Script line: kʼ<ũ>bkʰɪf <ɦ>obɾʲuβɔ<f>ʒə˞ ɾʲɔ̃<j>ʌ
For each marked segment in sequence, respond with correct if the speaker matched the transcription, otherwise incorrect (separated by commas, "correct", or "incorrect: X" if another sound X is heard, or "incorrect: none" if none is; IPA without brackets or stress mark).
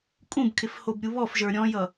correct, incorrect: h, correct, correct